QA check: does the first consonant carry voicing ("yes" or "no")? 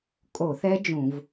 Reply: no